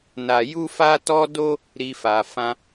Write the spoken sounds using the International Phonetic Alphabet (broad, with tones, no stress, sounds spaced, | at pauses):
n a˧ j u˦ f a˦ t ɔ˦ d o˦ | ɾ i˦ f a˧ f ã˦